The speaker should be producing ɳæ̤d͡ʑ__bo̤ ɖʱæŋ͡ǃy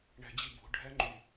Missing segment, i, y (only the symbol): i